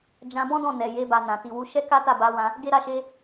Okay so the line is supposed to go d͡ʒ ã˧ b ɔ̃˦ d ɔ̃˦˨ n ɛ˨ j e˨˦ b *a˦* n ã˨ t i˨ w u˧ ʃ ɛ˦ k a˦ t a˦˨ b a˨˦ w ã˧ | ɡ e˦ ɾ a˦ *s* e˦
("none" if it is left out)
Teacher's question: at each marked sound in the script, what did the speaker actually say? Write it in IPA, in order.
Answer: a˧, ʃ

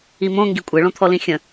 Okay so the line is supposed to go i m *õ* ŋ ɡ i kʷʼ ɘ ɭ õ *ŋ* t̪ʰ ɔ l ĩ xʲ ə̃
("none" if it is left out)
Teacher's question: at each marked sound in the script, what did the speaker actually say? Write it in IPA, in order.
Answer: õ, none

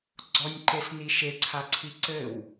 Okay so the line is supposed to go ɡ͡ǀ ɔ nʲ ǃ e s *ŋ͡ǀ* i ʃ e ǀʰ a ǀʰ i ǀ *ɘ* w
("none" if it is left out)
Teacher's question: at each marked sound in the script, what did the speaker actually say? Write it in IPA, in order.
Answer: n, ɘ

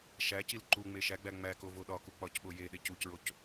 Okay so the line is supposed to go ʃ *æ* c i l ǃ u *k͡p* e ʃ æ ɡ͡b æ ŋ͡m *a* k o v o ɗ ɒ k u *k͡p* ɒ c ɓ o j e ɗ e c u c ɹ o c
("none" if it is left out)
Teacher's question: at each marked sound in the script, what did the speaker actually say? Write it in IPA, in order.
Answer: æ, ŋ͡m, æ, k͡p

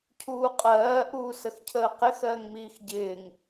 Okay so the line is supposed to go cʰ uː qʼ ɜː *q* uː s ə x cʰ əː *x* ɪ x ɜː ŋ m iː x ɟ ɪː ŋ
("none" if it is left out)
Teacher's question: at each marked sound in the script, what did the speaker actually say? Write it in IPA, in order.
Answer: ʔ, q

